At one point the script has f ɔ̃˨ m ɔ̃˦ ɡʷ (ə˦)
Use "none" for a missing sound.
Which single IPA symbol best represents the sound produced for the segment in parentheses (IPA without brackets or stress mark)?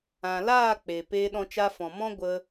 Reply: ə˧